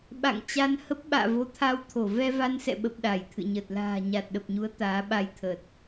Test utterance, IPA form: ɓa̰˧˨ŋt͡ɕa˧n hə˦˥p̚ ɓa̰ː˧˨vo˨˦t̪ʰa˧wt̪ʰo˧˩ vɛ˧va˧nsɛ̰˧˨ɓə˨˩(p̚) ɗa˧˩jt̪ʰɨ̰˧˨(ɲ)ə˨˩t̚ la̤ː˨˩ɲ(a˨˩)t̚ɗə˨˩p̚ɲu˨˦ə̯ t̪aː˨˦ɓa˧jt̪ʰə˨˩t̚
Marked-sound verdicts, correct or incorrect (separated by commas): correct, correct, correct